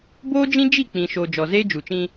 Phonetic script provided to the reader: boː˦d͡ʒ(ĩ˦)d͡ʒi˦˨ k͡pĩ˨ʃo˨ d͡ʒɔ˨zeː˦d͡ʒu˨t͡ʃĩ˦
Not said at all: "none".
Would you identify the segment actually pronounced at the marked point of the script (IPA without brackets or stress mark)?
ĩ˦